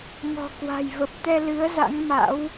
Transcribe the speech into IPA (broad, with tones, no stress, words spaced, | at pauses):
ŋɔ̤˨˩kwa̤˨˩jvə˨˩p̚t̪ɛ˧ lɨ˨˦ə̯ za̰˧˥ŋma̰˧˥w